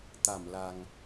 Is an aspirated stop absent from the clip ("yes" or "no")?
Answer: yes